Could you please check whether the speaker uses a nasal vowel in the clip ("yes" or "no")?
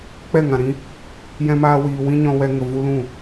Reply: yes